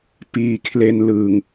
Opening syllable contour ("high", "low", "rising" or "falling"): low